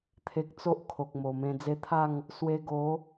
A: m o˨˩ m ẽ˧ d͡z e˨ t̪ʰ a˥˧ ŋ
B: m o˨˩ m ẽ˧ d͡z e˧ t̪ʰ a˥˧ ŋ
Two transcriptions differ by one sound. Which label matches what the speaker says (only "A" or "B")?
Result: B